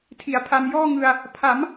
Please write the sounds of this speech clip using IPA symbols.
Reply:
tʰ i˩˦ a̯ pʰ a˧ m j ɔː˥˩ ŋ ɯ˧ a̯ | pʰ a˩˦ m

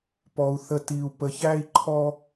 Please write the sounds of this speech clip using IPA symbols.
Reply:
p ɔ˨ u̯ θ ə˨ t i˨ u̯ p ə˨ ç æ˦ i̯ ǃʰ ɔ˦

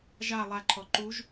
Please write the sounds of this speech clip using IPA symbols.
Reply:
ʒ a lˠ a ǃʰ ɔ ǃ u ʒ

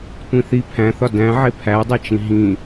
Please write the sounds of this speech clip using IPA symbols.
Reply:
tʷ ĩ θ i pʰ æ̃ θ ɒ d æ̃ ʕ e pʰ æ dˤ æ t͡ʃ ĩ ɦ ĩ

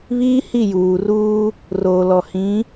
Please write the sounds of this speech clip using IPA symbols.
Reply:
β iː˦ h i˦˨ j uː˨ r uː˦ | r oː˨ l ɔ˨ h ĩ˨˦

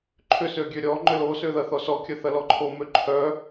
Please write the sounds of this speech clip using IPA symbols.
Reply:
ǃʰ ʏ s ø ɡʲ ø ɾʲ ɔ ŋ͡ǃ ʏ l o s ø ð ɐ θ ɔ s ɔ kʲ œ θ ɐ l ɔ ǃʰ o m ø ǃʰ œ

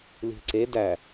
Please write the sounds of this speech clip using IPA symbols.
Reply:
l i̤ ǀ e d æ

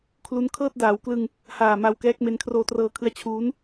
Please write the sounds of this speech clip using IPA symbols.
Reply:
kʰ l u˦˥ n kʰ ɤː˥˩ t̚ d aː˩˦ w k l ɯ˧ ŋ | h aː˨˩ m a˧ w k ɛː˦˥ k̚ m e˦˥ n kʰ r oː˧ t r ɤː˧ kʰ ɯ˦˥ a̯ t͡ɕʰ uː˦˥ n

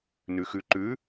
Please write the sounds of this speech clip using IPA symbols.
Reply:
n ʉ x ʉ ǃ ʉ

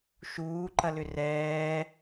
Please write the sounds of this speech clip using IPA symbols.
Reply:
ʃ uː ǃ ɐ l ʏ r ɛː

